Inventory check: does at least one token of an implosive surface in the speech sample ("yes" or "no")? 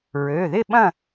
yes